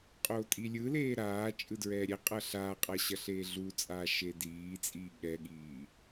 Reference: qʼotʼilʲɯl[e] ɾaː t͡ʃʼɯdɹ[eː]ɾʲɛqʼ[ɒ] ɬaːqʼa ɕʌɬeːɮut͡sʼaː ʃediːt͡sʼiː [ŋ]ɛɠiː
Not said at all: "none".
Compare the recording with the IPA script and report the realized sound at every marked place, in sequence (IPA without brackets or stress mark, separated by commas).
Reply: eː, ɛː, ʌ, ɠ